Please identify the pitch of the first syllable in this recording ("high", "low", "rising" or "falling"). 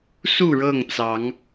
falling